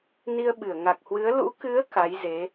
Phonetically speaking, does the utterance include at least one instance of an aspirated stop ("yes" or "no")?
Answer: no